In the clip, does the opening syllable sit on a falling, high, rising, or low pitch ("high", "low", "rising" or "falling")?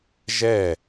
falling